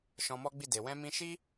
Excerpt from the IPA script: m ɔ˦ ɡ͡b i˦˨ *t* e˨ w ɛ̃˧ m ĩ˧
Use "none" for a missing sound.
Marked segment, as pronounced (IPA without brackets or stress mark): d